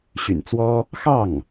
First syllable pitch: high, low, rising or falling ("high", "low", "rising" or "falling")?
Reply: low